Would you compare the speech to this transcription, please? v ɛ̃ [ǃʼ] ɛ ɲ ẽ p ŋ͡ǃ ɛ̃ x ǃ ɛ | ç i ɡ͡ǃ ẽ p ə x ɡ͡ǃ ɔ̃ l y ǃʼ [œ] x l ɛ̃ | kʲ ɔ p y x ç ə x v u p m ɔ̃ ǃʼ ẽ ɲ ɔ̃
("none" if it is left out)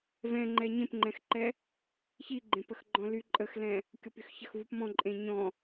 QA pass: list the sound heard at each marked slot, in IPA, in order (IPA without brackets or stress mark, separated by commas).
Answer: ŋ͡ǃ, ə